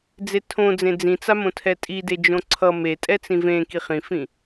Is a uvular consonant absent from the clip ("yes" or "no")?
no